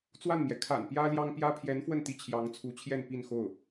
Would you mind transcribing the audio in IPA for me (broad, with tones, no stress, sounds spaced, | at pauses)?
t͡s w a˥˩ n m j ɛ˩ kʰ a̰˨˩ n p j ä˥ l j ɑ˥ ŋ p j ä˥ pʰ j ɛ˧˥ n f w ə˥˩ n t̪ i˧˥ t͡ɕʰ j ɑ˧˥ ŋ t͡sʰ u˧˥ t͡ɕʰ j ɛ˥˧ n p i˥˧ n x o˥˩ ʊ̯